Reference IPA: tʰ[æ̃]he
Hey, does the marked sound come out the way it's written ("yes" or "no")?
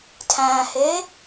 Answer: yes